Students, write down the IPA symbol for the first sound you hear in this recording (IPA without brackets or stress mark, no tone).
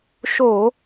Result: ʃ